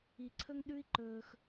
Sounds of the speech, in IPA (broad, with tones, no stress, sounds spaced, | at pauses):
i˧ ǀʰ ɵ˦ ŋ ɗ ʉ˦ i̯ ǃ ɵː˧ x